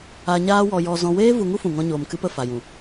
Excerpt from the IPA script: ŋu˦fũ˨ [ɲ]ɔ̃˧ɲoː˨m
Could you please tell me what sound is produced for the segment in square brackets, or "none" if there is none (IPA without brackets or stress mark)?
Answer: ŋ